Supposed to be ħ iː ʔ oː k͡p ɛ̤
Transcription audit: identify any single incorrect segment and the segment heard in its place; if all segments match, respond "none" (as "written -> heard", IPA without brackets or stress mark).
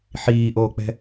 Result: none